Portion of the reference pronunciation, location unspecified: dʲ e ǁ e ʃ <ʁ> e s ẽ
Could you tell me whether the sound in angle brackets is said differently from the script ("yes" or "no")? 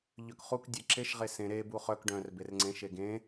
no